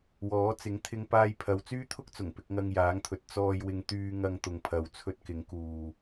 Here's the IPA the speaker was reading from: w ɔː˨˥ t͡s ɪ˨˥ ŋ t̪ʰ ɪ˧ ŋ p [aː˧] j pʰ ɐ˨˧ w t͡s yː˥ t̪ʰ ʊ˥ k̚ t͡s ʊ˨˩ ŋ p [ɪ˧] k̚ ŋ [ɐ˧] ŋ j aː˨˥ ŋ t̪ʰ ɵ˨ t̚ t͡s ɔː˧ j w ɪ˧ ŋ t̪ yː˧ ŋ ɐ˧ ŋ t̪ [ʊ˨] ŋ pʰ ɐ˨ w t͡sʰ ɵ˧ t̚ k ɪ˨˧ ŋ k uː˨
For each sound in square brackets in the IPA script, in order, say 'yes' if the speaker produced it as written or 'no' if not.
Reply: yes, yes, yes, yes

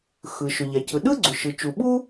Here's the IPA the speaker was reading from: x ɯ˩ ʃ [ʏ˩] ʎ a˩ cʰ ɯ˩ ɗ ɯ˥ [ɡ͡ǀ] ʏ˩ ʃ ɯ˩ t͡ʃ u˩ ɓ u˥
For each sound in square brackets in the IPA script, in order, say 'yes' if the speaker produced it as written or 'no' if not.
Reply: yes, yes

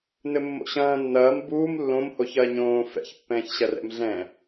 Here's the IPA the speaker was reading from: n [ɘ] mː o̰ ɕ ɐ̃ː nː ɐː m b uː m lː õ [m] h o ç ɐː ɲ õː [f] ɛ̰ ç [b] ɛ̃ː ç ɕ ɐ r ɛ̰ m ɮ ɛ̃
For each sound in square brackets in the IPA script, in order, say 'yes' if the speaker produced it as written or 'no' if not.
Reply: yes, yes, yes, no

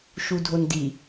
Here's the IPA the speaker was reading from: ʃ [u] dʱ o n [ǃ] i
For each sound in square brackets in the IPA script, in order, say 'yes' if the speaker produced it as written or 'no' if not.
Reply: yes, no

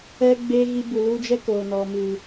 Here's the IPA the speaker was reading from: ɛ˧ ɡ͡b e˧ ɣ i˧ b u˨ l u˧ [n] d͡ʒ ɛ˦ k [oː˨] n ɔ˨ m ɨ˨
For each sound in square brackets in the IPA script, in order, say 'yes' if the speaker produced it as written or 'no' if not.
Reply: no, no

